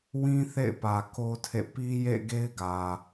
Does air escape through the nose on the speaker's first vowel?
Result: yes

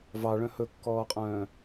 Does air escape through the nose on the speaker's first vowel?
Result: no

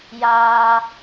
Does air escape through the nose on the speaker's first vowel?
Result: no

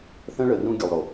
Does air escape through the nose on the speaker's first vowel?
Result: yes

